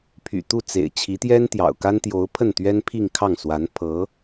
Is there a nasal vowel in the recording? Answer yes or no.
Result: no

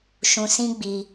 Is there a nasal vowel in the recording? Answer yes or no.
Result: yes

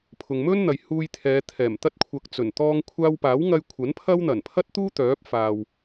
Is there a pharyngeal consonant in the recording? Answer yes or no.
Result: no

